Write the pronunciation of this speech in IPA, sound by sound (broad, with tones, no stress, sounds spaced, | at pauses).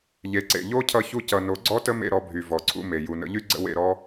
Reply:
ʎ e˨ ǀ ḛ˨ ʎ o˦ cʰ ʌ˧ ç u˧ c ʌ˨ n o˨˦ ɡ͡ǀ ɔ˦ t ə˦ m ḛ˧ ɾ ɔ˧ bʱ y˨ v ɔ˨ ǀʰ ṵ˧ m e˨ j u˨ n ə̰˨˦ ʎ y˦ ɡ͡ǀ ə̰˦ w ḛ˧ ɾ ɔ˦